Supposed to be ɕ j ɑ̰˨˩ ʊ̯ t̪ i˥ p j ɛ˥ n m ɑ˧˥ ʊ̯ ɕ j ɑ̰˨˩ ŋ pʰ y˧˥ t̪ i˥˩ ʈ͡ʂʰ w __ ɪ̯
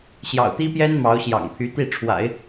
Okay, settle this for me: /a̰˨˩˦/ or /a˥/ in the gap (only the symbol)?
a̰˨˩˦